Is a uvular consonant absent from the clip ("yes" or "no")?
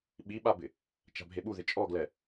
yes